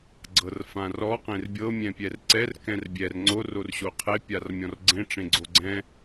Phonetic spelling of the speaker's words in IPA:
ɡ͡ǀ ɤ r f ã r ɔ q ẽ r bʲ ɤ mʲ ɛ̃ pʲ ɛ r ǀ ɛ r k ɛ̃ r bʲ ɛ r ŋ͡ǀ o r o r ɕ o qʰ e pʲ a r mʲ ɔ̃ r ɡ͡ǀ ẽ ʈ͡ʂ ẽ ɡ͡ǀ o ɡ͡ǀ ɛ̃

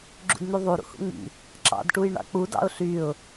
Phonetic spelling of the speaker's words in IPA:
ɡ͡ǁ ṵ d n̪ y ðˤ u ɾ ṵ h ṵ ŋ͡m ḭ | ǁ ɑ̰ d ʈ u j ɳ ɑ̰ k͡p u d ɑ̰ ʊ̯ ɬ y ʊ̯

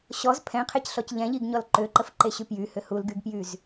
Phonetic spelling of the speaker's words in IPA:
ɕ ɔ z pʰ ɛ̃ qʰ e c ɬ ɔ c ʎ ɛ̃ ʎ i ɡ ɲ ɔ l ǃ ø ǃ ə f ǃ e ɕ y p j y h ʏ h u l ɡ y ɡ p j y z

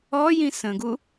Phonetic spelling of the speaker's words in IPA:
ɔ j ĩ s ə̃ ɡ u

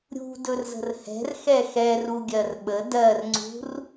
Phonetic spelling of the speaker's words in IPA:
ɾʲ ṳ d ɵ r z ə̤ r h ɛ̤ r x ɛ x ɛ r u ɡʲ ɜ r ɓ ə d ɜ r ŋ͡ǀ ṳ r

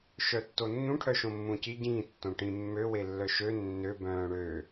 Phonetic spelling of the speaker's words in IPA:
ʃ œ tː o nː ũ ʈʰ œ ʃ õ mː ũ c i ɟ ĩː tː õ ʈ ĩ mː ø w e lː œ ʃ ø nː ø b œ̃ː ɽ ø

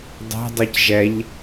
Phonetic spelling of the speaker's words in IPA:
dˤ ɛ̤ dˤ ɨ c ʒ ɛ ʎ

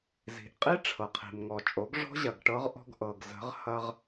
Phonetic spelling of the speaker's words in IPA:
z i̤˨ ʔ qʼ i˦ ʈ͡ʂʰ ɤ˨ qʰ i̤˨ m ŋ ɔ˨ t͡ʃʼ o˨˦ ɡ ʐ ɔ̤˦ ʑ ɐ˨ ɡ ʈ ɤ˦ ʁ ʔ ɔ̤˦ ɡ ʔ ɤ˨ ɡ z ə̤˨˦ ʁ h ɐ˦ ʁ

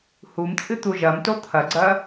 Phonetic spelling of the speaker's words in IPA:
h u m t͡sʼ ɨ t̪ u ʒ ɐ m t o t̪ʰ ɐ ɡ͡ǀ ɐ

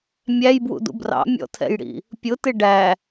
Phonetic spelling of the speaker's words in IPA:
mʲ æ j b w ṵ d ṵ b r ɑ̰ mʲ ɔ̰ tʰ ɛ̰ j ɽ ḭ | pʲ ʊ t ɪ ɖ æ

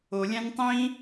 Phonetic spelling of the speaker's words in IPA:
o lʲ æ̃ n tˤ ĩ

